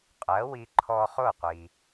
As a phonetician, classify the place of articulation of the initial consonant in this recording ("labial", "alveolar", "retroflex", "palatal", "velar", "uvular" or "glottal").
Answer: uvular